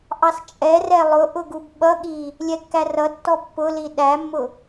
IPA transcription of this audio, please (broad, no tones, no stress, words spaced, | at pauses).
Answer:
ʔɑst͡ʃʼɛrɛ lˠʊʔʊ ɡubɓʌɠi | lʲɛkːærʌtːɔ pːʊli ɗæmːʊ